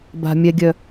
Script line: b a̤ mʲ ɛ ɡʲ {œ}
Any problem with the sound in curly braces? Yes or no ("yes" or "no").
no